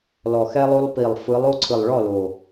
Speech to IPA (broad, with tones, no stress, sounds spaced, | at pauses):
l ɔ˨˩ x ɛ˦ lˠ o˦ lˠ p i˨˩ lˠ f ɯ˨˦ lˠ o˦ ǀʰ ɯ˨˩ lˠ ɭ ɔ˥˨ l o˨˩